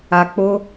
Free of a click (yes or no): yes